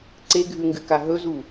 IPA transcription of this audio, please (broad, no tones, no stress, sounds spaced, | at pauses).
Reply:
ǀ e ɡʱ ʉ ŋ ɡ ɨ k a ɦ ɵ z u